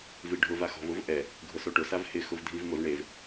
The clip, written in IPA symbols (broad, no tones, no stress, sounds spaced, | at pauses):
v i ɖʱ ʊ v a x ɔ̤ v ʊ v ʔ ɛ | ɡʱ ʊ s o ʈ ʊ s a v h ɪ x ʊ v dʱ i v m ʊ v ɳ e v